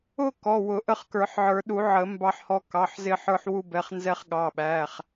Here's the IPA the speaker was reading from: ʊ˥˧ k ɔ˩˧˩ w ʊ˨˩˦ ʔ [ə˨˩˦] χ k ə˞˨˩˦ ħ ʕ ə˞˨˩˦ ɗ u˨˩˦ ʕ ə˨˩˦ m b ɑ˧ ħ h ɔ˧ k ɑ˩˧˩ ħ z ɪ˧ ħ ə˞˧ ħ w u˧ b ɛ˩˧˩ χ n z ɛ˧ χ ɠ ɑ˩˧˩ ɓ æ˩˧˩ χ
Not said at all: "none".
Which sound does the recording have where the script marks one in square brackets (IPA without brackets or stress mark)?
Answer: ə˧